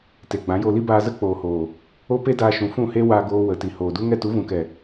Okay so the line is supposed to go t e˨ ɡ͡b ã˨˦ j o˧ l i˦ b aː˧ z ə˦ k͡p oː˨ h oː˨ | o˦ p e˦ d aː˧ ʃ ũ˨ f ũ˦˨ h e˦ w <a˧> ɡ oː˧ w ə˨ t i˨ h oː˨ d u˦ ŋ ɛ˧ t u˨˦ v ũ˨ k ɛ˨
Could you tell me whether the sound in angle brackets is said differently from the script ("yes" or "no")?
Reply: no